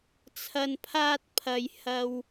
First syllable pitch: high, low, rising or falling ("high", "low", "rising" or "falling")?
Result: low